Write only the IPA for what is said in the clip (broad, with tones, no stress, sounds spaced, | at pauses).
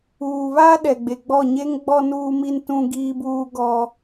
uː˨ β aː˦ ɗ ɛ˨ ɡ͡b e˨ ɡ͡b ɔ˦˨ ɲ e˦ ŋ ɡ͡b ɔ˦ n uː˦ m i˦ n t ũ˦ ɡ iː˦ b uː˦ ɡ ɔ˦